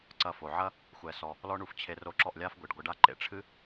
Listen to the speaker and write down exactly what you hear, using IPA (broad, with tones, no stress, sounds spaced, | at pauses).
ǀ ɐ˧ f o˨ ʕ ɐ˦ | xʷ ɛ˧ s ɔ˧ | l ɔ˦ ɳ u˧ f t͡ɕʰ e˧ r o˧ ǁ ɔ˦˨ ʔ lʲ a˦ f ɡʷ i˨ ɖ ɡʷ ɘ˧ ɖ a˦ ǃ ḛ˨ ʈ͡ʂʰ ɨ˦